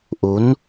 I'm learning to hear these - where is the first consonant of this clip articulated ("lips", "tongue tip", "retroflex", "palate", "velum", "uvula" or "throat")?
throat